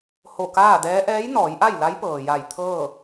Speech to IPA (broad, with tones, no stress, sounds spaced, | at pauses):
h o˧˩ k aː˥˨ d ɛː˧˥ ʔ ɛː˧˥ j n ɔː˩˧ j ʔ a˥˨ j l a˧˥ j p ɤː˩ j a˧˩ j t̪ʰ ɤː˥˨